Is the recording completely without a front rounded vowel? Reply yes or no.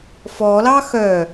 no